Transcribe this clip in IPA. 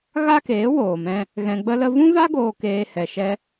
ɣ a˦ k eː˨˦ w oː˨ m ɛ̃˧ | ɣ ɛ̃˧ ɡ͡b ə˦ l ə˦ v ũ˦ v a˦ ɡ oː˧ k eː˧ h ɛ˨ ʃ ɛ˧

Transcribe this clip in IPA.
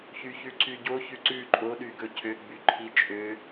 ç y ç ʉ ǀ y ɟ o ç ʉ ǀ ʉ ǃʼ o ɗ y ɡ ɵ cʰ ø ɡ͡b y ǃʰ i t͡ʃʼ ø

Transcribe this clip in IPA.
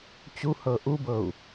t͡ɕ u h ɤ ʔ u b ɤ u̯

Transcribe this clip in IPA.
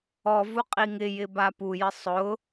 ɔ v u qʼ i ŋ ɪ j ɪ b a p u j ɪ sˤ ʊ

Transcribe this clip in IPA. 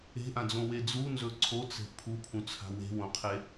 e̤ ʔ ã d͡z õ w e d͡z u n z ɵ ǀʰ o t͡s e̤ pʰ u pʰ ũ t͡sʰ a̤ w e̤ w õ qʰ e

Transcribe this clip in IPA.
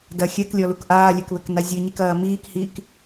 d ɐ xʲ ɛ k lʲ ɔ l u k ʔ aː lʲ ɛ k β ɘ k n a zʲ ɨ ɲ i k ɐː m iː k h iː k

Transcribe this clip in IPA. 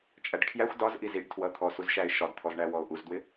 t͡ʃʼ æ ɖ kʰ j æ xʷ d ɒ z ʔ i z i ɖ tʰ w ʌ t̪ʰ ɔ s u z ʃ æ ɪ̯ ʃ ɒ d t̪ʰ ɔ z ɳ æ w ɔ ʊ̯ ʔ u z d w ɪ

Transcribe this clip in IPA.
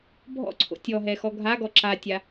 bʱ ɔ̰ ǀʰ o̰ tʲ ɔ ɦ ɛ x ɔ ɡʱ a ɡ ɔ ǁ a tʲ a

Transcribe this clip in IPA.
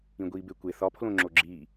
ĩ ɡʷ iː b e kʷ e θ ɒ pʰ l õ ŋ͡ǁ o ɡ͡ǁ iː

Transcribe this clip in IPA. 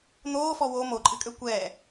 n̪ oː f ɔ w o m o ǃʼ ɨ kʼ ø kʷ ɛː

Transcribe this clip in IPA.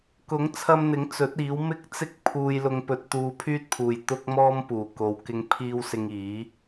k ʊ˨˥ ŋ t͡sʰ ɐ˧ m n̪ ɪ˨˥ ŋ t͡s ɵ˨˥ t̚ iː˨˥ w m ɪ˥ k̚ t͡s ɪ˥ k̚ pʰ uː˧ j l ʊ˧ ŋ p ɵ˧ t̚ t̪ uː˧ pʰ yː˥ t̚ pʰ uː˨ j t̪ ʊ˥ k̚ m ɔː˥ m p uː˨˩ k o˨˧ w k ɪ˨˧ ŋ pʰ iː˧ w s ɪ˧ ŋ iː˨˥

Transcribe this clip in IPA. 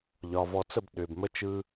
ʎ ɒ˨ v ɔ˨ t͡s ə˦˨ b ɗ ʏː˨ b m ə˦ t͡ʃ ɯ˦

